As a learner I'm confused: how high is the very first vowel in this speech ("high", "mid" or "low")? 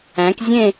low